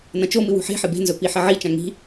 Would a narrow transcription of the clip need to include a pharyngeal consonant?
yes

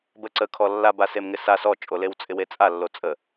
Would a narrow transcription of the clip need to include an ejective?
yes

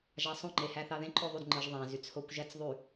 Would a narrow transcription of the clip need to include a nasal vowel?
yes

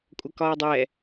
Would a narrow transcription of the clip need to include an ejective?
yes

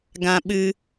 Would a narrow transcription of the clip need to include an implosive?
yes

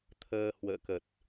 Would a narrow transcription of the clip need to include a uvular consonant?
no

